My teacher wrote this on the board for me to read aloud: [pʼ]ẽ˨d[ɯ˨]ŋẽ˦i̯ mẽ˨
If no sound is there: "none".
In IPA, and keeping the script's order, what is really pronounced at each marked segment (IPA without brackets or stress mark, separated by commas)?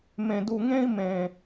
m, u˨